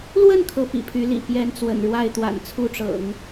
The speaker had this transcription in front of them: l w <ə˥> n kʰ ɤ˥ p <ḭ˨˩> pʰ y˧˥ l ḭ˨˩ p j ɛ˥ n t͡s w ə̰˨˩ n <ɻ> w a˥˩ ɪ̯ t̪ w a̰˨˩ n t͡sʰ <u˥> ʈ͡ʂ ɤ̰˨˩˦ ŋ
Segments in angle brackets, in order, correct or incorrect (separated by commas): incorrect, correct, correct, correct